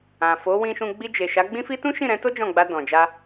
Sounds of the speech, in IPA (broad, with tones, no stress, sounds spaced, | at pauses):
ã˨ f o˨˦ w ĩ˧ ʃ ũ˧ ɡ͡b i˧ d͡ʒ e˨ ʃ a˨˦ ɡ͡b ĩ˦ f i˦ t ũ˦ ʃ ĩ˦˨ ɾ ɛ̃˧ t o˦ d͡ʒ ɔ̃˦˨ ɡ͡b a˧ d ɔ̃˨ d͡ʒ a˧